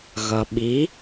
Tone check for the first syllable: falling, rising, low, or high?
low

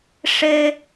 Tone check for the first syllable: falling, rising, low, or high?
high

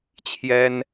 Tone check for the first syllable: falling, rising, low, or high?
high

